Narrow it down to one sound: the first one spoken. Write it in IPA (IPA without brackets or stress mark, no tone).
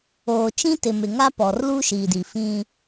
oː